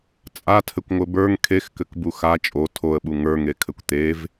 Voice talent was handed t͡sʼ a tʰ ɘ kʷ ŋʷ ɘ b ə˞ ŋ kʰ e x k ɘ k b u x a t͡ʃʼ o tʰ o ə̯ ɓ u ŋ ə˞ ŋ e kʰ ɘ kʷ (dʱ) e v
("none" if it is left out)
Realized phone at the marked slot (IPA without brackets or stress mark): t̪